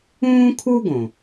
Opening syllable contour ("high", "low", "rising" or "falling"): high